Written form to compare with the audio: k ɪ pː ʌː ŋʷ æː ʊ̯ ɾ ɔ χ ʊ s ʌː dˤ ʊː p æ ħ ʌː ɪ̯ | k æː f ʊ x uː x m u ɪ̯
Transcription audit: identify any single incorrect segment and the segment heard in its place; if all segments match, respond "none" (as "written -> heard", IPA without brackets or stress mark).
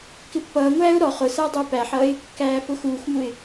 none